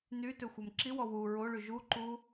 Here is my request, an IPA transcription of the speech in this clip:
ny tøxʷɛmǁiwɔ wu ɹoɭy ʒuǃu

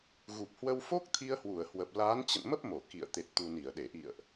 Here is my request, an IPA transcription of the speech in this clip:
ɣu˨˩p̚hwə˧w fo˦˥k̚t̪ʰi˧ə̯hwu˧˩ə̯ hwə˨˩p̚ laː˨˦n t͡ɕə̰˧˨nmə˦˥p̚mo˧˩ kḭ˧˨ə̯ t̪e˨˩t̚t̪u˨˩ ni˧˩ə̯ɗe˧˩ʔḭ˧˨ə̯ʔ

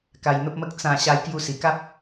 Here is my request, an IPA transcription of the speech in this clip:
ka˧jn̪ə˦p̚mə˦k̚ t͡sã˥˧ ɕa˧jkju˧si˨˩ka˦p̚

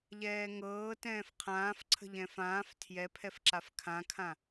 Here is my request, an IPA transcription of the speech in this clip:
ʎɛːŋɤː tɛ̃ːfqʰãːf ǀʰə̤ʎɛ̃fãːf tʰjɛpʰɛfǁaf kʰãkʰã

